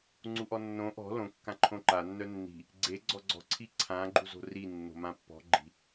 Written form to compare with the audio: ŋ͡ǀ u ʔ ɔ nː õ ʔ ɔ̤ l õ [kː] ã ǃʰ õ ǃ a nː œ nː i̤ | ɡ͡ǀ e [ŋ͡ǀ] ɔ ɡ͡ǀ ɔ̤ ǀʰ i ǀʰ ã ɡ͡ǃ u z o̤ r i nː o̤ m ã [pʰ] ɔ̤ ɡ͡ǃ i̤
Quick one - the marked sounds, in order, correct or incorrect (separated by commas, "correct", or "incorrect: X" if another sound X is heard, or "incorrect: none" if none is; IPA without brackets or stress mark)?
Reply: correct, incorrect: ɡ͡ǀ, incorrect: pː